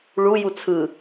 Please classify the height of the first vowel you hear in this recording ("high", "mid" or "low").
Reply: high